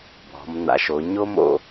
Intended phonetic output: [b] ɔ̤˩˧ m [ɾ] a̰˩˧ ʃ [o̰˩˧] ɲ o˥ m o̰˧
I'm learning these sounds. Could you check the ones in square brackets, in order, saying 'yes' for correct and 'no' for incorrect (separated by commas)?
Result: yes, no, no